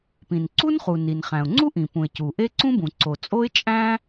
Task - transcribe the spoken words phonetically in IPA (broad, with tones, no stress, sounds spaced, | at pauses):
p ĩ˩ n ǀ u˥ n χ u˩ n i˩ n χ æ̃˩ ʊ̯ ŋ͡ǀ u˥ ʔ ĩ˩ p ũ˩ ɪ̯ c u˩ ʔ e˥ ǀ ũ˥ b ũ˩ ǀ o˩ t͡sʼ o˥ ɪ̯ t͡ʃʼ æ̃˥